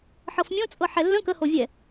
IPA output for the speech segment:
ħ ɤ f mʲ õ t͡sʼ ɤ ħ ɛ lː ə̃ k ə h o vʲ ɛ

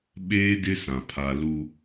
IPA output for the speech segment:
ɓ eː˦ d ɪ˦ s ã˨ pʰ a˨ l u˦

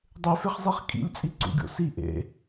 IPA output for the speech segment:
dˤ e f e χ zˤ i χ kʼ ḭ lʲ t͡sʼ i ǀ ṵ ɡʲ o̰ s i ʔ ḛ

